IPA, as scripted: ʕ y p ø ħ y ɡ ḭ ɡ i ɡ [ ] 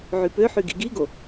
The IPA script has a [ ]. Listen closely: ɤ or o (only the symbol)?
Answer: o